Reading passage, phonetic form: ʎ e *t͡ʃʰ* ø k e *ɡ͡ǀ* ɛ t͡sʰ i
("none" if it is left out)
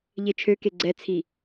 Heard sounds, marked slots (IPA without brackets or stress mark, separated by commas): t͡ʃʰ, ɡ͡ǀ